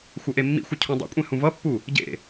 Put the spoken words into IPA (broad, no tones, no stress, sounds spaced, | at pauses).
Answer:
xʷ ʌ ʔ e mː ḭ xʷ ʌ cʰ ũ dˤ ḭ kʷʼ ẽ h ũ v ʌ pː u | ɟ ḛ